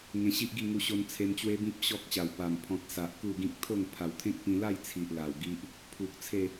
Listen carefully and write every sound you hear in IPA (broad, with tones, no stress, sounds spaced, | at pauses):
ŋ ẽ˧ ɕ i˦ ʔ ɡ i˥˧ ŋ u˧ ɕ o˧ n t͡sʰ e˧ m t͡ɕ w e˦ b ĩ˦ p̚ ɕ ɔ˦ k̚ ɕ a˨˩ w p a˨˩ m pʰ ɔ̃˨ t̚ s a˨ ʔ k u˥˧ ɡ ĩ˦ k̚ t̪ʰ o˥˧ ŋ pʰ a˨˩ w t̪ʰ ẽ˦ k̚ p ĩ˧ l a˥˧ j t͡sʰ i˨ ʔ l a˨˩ w ɡ i˦ ʔ | pʰ u˨ k̚ t͡sʰ e˥˧